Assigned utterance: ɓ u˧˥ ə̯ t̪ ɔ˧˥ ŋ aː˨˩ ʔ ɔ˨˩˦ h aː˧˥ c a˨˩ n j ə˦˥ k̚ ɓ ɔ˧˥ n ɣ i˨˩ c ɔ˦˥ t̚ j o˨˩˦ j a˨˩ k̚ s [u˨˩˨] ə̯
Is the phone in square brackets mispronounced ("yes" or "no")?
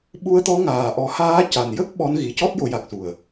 yes